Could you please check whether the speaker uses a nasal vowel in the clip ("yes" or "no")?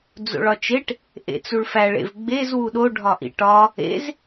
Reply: no